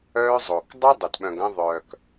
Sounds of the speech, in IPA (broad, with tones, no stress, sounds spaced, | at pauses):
œː˦ zˤ oː˨ k dˤ œ˦ dˤ e˨ t ɓ œ̃˨ ɡ ɐ̃˦ ðˤ œː˨ k